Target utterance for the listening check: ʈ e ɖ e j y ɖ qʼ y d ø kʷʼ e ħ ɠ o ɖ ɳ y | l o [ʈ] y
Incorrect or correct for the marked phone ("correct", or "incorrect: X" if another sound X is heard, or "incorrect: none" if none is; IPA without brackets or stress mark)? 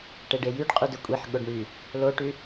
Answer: correct